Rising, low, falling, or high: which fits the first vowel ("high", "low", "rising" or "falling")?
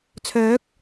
rising